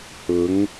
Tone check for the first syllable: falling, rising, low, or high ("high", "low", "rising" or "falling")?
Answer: rising